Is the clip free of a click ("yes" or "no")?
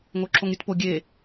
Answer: no